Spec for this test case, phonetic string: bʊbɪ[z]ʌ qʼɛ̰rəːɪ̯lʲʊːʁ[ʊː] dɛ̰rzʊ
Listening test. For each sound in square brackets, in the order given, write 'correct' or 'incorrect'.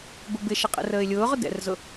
incorrect: ʃ, incorrect: ʊ

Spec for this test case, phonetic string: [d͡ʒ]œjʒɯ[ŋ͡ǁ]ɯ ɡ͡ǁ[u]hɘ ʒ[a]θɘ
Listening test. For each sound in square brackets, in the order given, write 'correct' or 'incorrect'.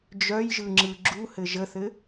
correct, correct, correct, incorrect: ə

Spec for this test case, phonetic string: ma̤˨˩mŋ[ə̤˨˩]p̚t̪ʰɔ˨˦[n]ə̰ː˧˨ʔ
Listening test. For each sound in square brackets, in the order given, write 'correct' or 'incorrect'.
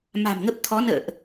incorrect: ə˦˥, correct

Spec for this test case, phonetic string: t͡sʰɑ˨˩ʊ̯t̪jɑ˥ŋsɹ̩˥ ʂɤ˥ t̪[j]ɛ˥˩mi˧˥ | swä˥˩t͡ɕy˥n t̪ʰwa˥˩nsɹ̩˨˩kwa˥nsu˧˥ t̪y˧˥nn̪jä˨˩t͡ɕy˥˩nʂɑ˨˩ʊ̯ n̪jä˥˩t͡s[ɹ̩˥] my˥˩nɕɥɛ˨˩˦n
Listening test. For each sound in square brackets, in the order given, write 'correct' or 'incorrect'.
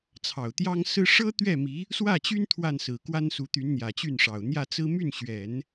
incorrect: ɥ, correct

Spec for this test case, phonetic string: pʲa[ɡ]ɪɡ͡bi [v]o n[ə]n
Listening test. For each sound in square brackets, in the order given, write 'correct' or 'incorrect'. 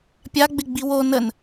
incorrect: ɡ͡b, incorrect: w, correct

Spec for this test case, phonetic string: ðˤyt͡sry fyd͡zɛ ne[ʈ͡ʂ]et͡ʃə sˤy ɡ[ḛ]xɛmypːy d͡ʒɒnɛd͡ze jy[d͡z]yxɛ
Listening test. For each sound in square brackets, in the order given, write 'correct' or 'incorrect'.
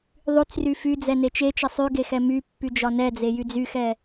incorrect: t͡ʃ, incorrect: e, correct

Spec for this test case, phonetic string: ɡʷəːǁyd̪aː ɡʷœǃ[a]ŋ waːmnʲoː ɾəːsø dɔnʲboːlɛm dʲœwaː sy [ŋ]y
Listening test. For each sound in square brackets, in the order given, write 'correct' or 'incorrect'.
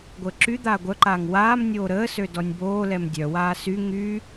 incorrect: aː, correct

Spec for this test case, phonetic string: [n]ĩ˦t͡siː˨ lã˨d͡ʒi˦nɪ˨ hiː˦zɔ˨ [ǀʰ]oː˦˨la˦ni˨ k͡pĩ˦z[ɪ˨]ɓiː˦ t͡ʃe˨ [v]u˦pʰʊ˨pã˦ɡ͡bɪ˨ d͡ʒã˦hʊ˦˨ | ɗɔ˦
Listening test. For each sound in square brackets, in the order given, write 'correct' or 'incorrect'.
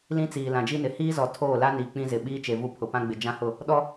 incorrect: l, incorrect: tʰ, correct, correct

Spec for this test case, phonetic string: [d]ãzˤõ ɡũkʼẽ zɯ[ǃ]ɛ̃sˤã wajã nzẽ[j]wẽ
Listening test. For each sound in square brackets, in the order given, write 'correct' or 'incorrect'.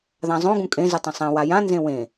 incorrect: ð, incorrect: tˤ, incorrect: none

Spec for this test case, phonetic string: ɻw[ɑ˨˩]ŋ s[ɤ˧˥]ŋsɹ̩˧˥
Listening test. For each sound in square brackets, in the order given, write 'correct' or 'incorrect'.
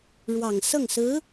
correct, incorrect: ɤ˥˩

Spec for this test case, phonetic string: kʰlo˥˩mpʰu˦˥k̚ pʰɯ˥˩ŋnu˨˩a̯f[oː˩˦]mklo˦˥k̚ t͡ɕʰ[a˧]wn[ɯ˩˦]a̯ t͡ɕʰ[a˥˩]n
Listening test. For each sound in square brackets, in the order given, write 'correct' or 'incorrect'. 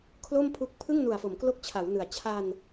incorrect: o˩˦, incorrect: a˩˦, correct, incorrect: a˧

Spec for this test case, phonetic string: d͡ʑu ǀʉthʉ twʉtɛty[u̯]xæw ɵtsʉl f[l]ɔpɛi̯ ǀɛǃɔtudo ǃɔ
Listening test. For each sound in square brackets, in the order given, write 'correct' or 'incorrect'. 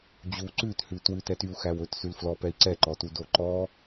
correct, correct

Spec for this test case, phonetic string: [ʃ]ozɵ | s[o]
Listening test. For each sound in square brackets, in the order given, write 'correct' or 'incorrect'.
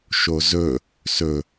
correct, incorrect: ɵ

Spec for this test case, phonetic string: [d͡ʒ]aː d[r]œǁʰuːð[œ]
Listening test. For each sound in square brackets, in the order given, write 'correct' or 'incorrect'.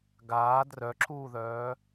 incorrect: ɡ, correct, incorrect: œː

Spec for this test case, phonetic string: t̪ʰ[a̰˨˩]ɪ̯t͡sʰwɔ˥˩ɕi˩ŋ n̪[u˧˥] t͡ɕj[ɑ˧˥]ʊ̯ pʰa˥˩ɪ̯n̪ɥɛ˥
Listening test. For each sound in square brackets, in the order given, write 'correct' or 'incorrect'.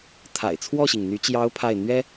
correct, incorrect: y˧˥, correct

